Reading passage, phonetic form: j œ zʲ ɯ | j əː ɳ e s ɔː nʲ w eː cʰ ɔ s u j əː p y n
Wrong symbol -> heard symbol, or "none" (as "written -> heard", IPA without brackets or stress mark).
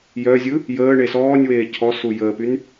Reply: none